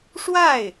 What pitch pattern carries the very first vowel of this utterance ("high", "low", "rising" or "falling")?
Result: falling